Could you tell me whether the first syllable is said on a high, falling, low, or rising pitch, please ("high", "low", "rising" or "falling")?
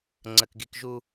high